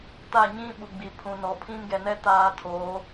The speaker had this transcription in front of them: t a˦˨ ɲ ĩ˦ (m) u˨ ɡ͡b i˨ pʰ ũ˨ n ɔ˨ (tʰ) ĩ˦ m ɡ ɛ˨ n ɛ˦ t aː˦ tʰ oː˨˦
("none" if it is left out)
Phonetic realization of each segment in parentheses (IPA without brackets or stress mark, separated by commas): ɓ, pʰ